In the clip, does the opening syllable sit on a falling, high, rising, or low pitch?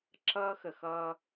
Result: high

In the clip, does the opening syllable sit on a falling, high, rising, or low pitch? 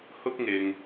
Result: high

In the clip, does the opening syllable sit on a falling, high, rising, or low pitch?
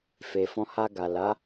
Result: low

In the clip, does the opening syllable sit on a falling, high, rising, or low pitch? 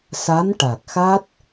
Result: rising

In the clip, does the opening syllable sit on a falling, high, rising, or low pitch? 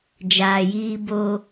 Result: low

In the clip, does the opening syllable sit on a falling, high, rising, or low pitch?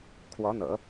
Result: rising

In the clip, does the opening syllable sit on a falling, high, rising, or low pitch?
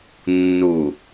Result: low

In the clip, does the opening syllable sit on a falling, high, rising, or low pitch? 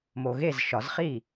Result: low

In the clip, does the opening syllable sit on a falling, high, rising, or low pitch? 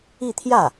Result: falling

